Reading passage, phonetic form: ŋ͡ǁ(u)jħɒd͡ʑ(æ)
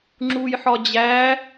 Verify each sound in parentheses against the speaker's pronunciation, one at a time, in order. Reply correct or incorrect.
correct, correct

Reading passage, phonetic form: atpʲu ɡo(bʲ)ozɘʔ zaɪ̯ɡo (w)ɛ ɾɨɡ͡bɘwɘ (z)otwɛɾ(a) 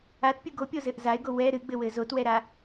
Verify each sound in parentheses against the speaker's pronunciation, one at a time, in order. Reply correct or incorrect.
incorrect, correct, correct, correct

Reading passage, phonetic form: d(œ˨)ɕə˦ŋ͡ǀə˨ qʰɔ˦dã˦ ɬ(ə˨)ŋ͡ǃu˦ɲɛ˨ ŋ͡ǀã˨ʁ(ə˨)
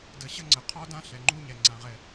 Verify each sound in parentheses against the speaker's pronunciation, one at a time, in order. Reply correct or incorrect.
incorrect, incorrect, incorrect

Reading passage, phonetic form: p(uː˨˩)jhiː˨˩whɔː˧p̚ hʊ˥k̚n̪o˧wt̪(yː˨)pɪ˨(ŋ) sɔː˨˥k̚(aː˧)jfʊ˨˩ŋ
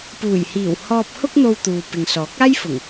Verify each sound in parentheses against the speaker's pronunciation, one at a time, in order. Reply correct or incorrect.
correct, incorrect, correct, incorrect

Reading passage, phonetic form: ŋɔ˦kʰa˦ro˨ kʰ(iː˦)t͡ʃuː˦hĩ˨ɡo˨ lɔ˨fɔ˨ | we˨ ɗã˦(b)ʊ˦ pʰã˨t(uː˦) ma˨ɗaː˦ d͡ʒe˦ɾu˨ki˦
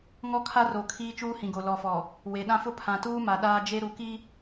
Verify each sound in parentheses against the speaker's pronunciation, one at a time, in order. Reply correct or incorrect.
correct, incorrect, correct

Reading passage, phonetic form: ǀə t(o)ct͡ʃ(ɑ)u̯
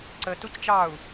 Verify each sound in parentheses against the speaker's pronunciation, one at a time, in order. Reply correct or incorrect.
incorrect, correct

